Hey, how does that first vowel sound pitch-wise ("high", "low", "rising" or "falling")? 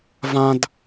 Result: high